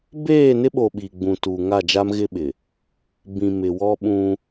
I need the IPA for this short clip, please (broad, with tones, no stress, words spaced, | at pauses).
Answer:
beː˦˨nɪ˦ɓo˨ ɓiː˨ɡ͡bũ˨ tuː˨ŋa˦˨d͡ʒa˦m ɣɪ˦ɓɪ˨ | bĩ˨ mɪ˨wɔ˦ ɓũ˦